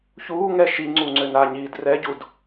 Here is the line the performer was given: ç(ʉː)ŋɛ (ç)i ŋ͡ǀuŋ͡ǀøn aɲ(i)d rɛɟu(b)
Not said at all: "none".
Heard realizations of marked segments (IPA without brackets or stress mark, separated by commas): uː, ʃ, iː, d